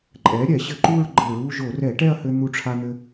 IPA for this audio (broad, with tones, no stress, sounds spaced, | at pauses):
ǃʼ ɛ˩˥ ɾʲ ɛ˧˩˧ ɕ ɘ˧ ǃ u˥˧ ɹ ɡ͡ǃ ɘ˧˩˧ ɹ u˥˧ ʒ o˧˩˧ r ɛ˧˩˧ ʈ ɛ˥˧ ɐ̯ h ɘ˧ n̪ u˧ ʈ͡ʂʰ a˧ n̪ ɘ˧